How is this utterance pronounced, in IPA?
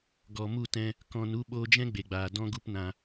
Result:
ɡɔ˨mu˦˨tɛ̃˧ | kɔ̃˧nu˦ ɓoː˧d͡ʒɛ̃˦ɡ͡be˨ɡ͡baː˨ dɔ̃˦ɡu˦pnã˧

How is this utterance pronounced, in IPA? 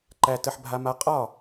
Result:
ǃæ˦ tə˦ħbʱa˦ma˦ qʼɒ˦˨

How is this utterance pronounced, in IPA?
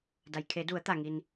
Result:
da˩jkʰe˩˧du˩˧ə̯t̪a˩ ŋi˩n

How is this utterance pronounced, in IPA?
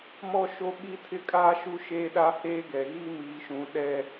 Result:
mɔ˦ ʃo˦ ɓi˦tʰɪ˦kʼaː˦ ʃu˦ʃeː˦ɗa˦ heː˦ɡɛ˨ɣi˦ miː˨ʃũ˨ ɗɛ˦

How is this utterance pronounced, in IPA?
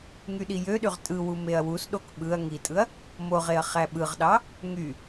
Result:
ŋyɗijøɗyʁ tʼɯwu meɐ̯wusɗok ɓɯɐ̯ ŋitʼɯɐ̯ | moʁeɐ̯ χæɓɯʁɗɑ | ŋy

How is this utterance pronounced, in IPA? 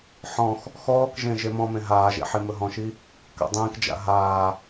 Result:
ħɔ̃x | xɔːkʒẽ ʒemɔ̃mẽ ɦaːʒḛ ħimɵɦɔ̃ʃi | ka̰dˤĩːkd͡ʒa̰ ɦaː

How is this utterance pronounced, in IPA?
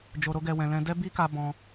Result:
d͡ʒo˧ɾo˦ɡɛ˧ wɛ̃˧lɛ̃˦ dɛ˦bi˦ka˧ bɔ̃˧

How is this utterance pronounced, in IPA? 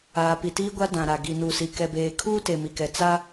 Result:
aː˨pi˨tiː˦ɡʷa˦ dã˨ɾa˨ ɡi˨nu˨si˨ kɛ˨beː˨ kʰuː˦ te˨mi˨kɛ˨ t͡sa˦

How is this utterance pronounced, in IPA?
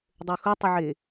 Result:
dˤøxʊtˤʊʕe

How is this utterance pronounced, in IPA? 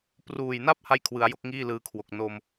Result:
pruː˨˩jna˥˩p̚ ha˥˩jkʰwɯ˩˦a̯jo˥˩k̚ŋiː˥˩ lɯː˧kʰwo˨˩k̚ no˧m

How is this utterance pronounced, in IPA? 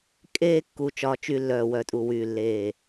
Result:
kʼeː˦ kːu˦t͡ʃɒː˦t͡ʃy˦lːœː˦˨ wœ˦˨tʼu˦˨ wyː˦˨lːeː˦˨

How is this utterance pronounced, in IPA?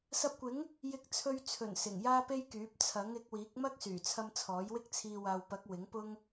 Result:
sɐ˧p̚kʷɪ˨˥ŋ | jɪ˧k̚t͡sʰɵ˧ɥt͡sʰɵ˨˩n sɪ˨˩ŋjaː˥pe˥jkyː˨˥p̚ t͡sʰɐ˨˥ŋɪ˨˥k̚wiː˨˥k̚ mɐ˥k̚syː˨˩t͡sʰɐ˧m t͡sʰɔː˨˥jwɪ˥k̚t͡sʰiː˧ waː˨wpɐ˨˥k̚ wɪ˨˥ŋ pʊ˥ŋ

